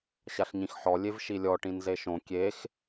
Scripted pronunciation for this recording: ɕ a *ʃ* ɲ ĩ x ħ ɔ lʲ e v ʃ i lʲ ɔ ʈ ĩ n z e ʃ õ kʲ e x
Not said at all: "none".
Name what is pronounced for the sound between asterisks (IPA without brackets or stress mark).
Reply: ɬ